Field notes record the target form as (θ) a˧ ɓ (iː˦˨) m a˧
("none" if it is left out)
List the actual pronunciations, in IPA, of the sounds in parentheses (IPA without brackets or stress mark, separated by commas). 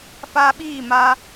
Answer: f, iː˦˨